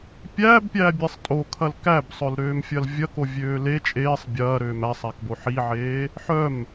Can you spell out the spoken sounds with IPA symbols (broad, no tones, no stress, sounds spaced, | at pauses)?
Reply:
pʲ æː b pʲ æː bʲ e sˤ tʼ o kʰ ɐ l k æ b sˤ œ l ɾ øː m fʲ ɐ l vʲ ɐ k o vʲ øː l e t͡ʃʼ eː sˤ bʲ ɐː ɾ øː m æ sˤ æ k b o ħ i ʕ eː | ħ œ m